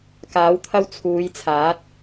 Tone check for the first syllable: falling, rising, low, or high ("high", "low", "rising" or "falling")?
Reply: rising